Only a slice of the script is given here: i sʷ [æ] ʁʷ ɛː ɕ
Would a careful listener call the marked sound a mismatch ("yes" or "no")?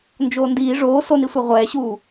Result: yes